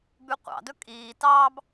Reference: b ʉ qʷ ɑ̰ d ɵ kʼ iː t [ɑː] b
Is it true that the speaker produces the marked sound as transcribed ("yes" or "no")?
yes